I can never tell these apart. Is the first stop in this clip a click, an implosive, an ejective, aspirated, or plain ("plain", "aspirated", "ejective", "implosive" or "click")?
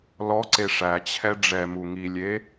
click